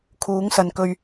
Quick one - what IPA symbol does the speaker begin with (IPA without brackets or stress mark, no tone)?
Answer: kʰ